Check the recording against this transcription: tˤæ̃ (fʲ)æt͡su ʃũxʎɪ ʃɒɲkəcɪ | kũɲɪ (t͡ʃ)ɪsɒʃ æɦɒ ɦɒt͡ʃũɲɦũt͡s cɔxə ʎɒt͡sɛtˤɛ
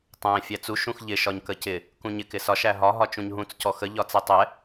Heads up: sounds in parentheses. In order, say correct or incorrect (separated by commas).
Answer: correct, incorrect